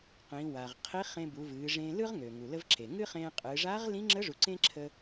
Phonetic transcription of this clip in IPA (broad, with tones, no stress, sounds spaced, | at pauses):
q ĩ˩˧ w a˩ ʁ qʰ i˧˥ χ ẽ˧ b u˩˧ v ɨː˩˧ ʐ ẽ˧ l ɯ˥ ʁ ŋ øː˩ ŋ u˩ l ə˧ v ǁ e˩ ŋ ɨ˥ χ ẽː˧ qʼ ɨː˩˧ ʐ aː˧˥ ʁ l ĩ˧˥ ŋ͡ǁ ə˧˥ ʐ u˩˧ ǀ ẽ˥ ǁʰ ə˧